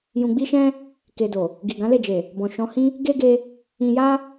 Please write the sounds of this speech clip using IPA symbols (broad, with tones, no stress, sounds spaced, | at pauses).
j ũ˧ ɡ͡b i˦ ʃ ɛ̃˦ | k e˧ d o˨ | ɡ i˨ ɡ ã˨˦ l e˦˨ d͡ʒ e˨ | b ɔ̃˨ ʃ ɔ̃˧ h ĩ˦ | ɡ e˦ ɡ e˧ | ĩ˧ j a˦